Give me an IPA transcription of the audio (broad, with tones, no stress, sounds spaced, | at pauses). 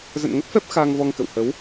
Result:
z ə̰˧˨ n ŋ ə˦˥ t̚ f ɛ˦˥ p̚ x aː˧ ŋ v ɔ˧ ŋ k ə̰˧˨ w h ə˨˦ w